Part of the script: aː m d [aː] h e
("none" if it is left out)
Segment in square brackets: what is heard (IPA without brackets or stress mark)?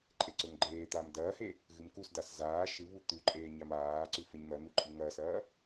ɐː